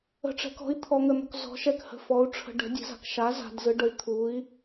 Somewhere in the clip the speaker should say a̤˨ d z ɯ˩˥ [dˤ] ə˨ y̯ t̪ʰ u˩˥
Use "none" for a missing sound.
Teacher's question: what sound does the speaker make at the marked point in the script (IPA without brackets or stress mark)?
ɖ